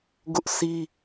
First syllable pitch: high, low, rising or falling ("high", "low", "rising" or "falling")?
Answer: high